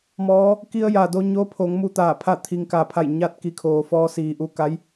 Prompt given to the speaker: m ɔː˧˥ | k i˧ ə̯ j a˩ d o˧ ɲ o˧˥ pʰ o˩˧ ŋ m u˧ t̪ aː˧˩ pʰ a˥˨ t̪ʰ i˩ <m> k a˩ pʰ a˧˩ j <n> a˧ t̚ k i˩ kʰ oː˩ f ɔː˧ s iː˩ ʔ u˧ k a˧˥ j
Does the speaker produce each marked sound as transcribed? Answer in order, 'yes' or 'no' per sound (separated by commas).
no, no